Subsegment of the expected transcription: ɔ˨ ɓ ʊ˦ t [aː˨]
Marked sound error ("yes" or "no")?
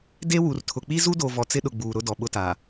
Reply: no